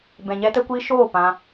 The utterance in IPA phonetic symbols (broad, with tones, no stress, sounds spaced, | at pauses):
b ɛ̃˨ ɲ ɛ˧ t ə˧ kʷ iː˧ ʃ oː˦˨ p ã˧